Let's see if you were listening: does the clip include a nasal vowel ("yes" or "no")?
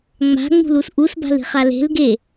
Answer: no